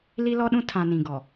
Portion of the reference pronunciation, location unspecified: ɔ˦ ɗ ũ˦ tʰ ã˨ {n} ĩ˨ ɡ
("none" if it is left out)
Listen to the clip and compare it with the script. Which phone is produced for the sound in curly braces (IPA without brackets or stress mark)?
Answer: n